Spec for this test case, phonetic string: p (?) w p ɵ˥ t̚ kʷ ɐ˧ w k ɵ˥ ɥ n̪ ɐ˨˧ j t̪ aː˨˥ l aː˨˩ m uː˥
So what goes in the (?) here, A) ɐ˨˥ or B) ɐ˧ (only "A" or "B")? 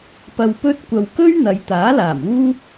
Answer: B